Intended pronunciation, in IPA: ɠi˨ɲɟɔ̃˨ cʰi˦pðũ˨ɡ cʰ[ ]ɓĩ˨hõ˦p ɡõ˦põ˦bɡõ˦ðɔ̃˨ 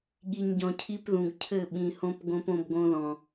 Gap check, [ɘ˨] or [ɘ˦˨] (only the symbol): ɘ˦˨